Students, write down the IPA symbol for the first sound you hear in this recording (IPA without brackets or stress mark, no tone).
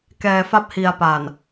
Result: k